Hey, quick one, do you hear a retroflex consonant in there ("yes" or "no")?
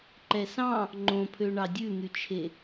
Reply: yes